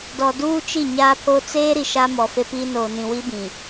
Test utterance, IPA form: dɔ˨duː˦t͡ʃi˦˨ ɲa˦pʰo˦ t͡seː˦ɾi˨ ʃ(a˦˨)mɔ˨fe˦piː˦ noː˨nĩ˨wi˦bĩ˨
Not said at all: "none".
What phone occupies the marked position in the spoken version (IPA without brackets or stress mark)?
a˦